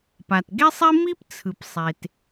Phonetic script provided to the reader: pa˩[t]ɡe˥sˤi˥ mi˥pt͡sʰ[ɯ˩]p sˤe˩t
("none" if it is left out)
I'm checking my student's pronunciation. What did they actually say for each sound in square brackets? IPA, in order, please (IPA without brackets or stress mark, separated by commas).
t, ɯ˩